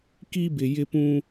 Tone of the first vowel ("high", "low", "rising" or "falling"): high